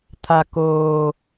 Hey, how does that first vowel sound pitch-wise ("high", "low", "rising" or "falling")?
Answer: low